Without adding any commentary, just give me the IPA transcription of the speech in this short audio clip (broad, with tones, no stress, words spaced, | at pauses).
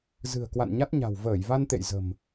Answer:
zɨ̤˨˩ə̯ kwa̰˧˨nɲa˦˥t̚ɲa̤˨˩w vəː˧˩jva˧nt̪ḛ˧˨j zə̤˨˩m